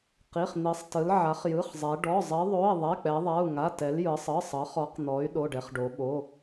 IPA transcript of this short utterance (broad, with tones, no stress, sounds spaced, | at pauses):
q i˩˧˩ χ n̪ i˩˧ sˤ t ɯ˩˧ l ʕ a˩˧ χ j ɯ˩˧˩ χ zˤ ɛ˩˧ ɖ ɔ˩˧˩ zˤ i˩˧ ðˤ o˩˧˩ i̯ ðˤ ɛ˩˧˩ k͡p ɛ˩˧ ðˤ a˩˧˩ u̯ ŋ a˩˧˩ t ɛ˩˧ l j ɯ˩˧ sˤ ɯ˩˧˩ sˤ ɤ˩˧ χ ɔ˩˧ q n̪ ɔ˩˧ y̯ ɗ o˩˧˩ ɖ ɛ˩˧ χ ɖ o˩˧ ɓ o˩˧˩